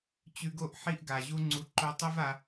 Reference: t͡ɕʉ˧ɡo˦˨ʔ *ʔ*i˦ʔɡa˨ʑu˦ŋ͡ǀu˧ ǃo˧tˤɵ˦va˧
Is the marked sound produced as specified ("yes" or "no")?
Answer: no